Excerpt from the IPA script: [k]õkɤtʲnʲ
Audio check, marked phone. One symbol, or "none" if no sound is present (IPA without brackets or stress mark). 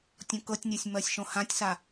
tʲ